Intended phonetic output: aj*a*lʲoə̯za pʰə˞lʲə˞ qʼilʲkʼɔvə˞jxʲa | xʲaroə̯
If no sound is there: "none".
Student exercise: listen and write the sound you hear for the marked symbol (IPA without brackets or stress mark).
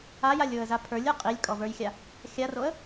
a